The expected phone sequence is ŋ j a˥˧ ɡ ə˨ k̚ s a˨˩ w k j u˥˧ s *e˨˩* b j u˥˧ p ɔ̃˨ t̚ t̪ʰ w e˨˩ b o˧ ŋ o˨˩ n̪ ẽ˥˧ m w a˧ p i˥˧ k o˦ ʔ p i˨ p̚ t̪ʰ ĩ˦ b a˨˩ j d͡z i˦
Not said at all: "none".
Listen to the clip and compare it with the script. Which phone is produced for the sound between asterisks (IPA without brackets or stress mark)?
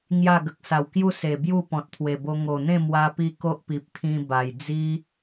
e˨˩